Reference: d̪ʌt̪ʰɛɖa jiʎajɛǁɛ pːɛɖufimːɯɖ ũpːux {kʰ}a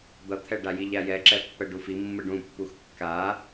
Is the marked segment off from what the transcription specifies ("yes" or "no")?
yes